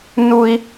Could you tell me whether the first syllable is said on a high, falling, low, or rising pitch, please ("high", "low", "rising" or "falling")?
high